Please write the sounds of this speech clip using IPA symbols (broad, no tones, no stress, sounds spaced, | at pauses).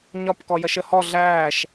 ɲ ɒ p k ɔ j ʌ ʃ ə h ɔ ɮ æː ʃ